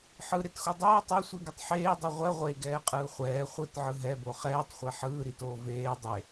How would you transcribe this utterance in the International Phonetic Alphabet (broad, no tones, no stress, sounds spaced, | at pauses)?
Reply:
ħ ɯ ɾ e t x o dˤ oː tˤ o sʷ i ɡ ɯ tˤ ħ eː dˤ ɯ ʁʷ ɛ ʁʷ e ɡ ɛː qʼ ɯː χʷ ɛː χʷ ɯ t ʕ ɯ ɦ ɛ b o χ ɛː tˤ χʷ ɛ ħ ɯː ɾ i t oː v eː dˤ e